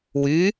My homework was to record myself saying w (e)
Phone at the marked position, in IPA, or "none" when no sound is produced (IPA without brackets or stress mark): y